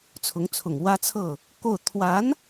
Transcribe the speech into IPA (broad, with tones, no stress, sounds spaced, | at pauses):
t͡sʰ ʊ˧˥ ŋ t͡sʰ ʊ˨˩ ŋ w ä˥ t͡sʰ ɤ˥˩ | k o˥˩ ʊ̯ t̪ʰ w a˧˥ n